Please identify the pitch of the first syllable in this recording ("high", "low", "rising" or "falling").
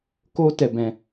high